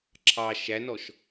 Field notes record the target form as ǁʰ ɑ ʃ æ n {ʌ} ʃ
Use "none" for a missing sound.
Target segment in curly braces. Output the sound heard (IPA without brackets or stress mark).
ɔ